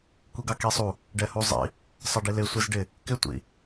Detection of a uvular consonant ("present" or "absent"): absent